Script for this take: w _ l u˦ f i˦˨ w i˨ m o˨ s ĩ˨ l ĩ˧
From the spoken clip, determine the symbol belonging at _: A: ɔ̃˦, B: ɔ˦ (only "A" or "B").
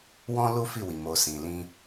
A